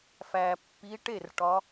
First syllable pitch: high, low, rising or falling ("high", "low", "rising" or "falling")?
low